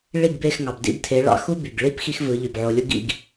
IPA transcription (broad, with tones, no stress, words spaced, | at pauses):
ɭi˥˩ɡbe˥˩x ŋɑ˩bdḭ˧btʰe˩˥ ɭɑ̰˩˥xu˥by˩ɡɭi˥p xi˥xvɯ˩˥ʎy˩bʕo˧ lʲu˥ɡ ḭ˧ɡ